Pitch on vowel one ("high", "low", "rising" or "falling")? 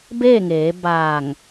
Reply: falling